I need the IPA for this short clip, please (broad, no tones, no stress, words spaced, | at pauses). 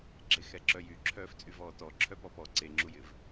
ɡ͡ǁexɛǁœjy ǁʰœːft͡sʼyvɔːtɔ ǁʰœpɔpɔ ǀeŋ͡ǁujɪv